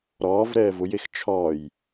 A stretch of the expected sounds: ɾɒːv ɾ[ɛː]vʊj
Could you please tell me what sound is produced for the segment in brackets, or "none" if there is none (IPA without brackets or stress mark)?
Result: ɛː